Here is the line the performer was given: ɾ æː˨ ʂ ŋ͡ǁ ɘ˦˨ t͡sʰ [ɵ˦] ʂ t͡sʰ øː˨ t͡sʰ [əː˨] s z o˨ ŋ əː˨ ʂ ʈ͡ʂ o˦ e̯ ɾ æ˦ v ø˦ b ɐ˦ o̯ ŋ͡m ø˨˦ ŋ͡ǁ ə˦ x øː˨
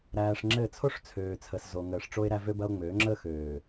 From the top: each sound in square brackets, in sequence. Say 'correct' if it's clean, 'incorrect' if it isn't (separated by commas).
incorrect, incorrect